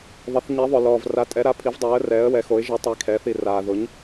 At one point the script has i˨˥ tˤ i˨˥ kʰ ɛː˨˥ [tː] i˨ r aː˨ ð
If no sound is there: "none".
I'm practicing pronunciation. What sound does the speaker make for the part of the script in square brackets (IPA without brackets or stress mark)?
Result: θ